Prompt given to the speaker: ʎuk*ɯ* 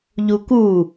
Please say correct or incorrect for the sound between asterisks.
incorrect